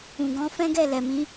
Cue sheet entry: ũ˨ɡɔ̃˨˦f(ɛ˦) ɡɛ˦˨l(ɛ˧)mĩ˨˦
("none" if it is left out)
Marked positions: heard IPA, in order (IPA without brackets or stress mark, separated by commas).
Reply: ɛ̃˦, ɛ˨